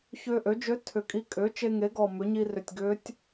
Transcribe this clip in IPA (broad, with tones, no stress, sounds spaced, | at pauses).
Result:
ç ʏː˧ ʔ ø˩˥ d͡ʒ ø˧˥ tʰ ʏ˨˩ kʼ i˧˥ kʼ ʏː˩˥ t͡ʃ e˧ ŋ e˩˥ ɡ ɔ˨˩ m ʏ˩˥ ɲ i˧ r ʏ˨˩ tʲ ɡ ʏː˧˥ tʲ